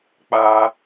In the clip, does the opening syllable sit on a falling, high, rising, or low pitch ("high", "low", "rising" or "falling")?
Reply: high